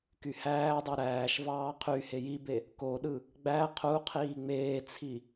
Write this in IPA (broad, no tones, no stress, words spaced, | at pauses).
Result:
kyhæːdˤe ɾæːʃvɑː qʰy hejibe | koɗɯ | ɡ͡bæ qʰu qʰiːŋ͡meːt͡sʰi